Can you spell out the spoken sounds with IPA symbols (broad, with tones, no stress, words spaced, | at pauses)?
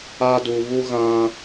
a˦du˨ βu˦ ɣã˦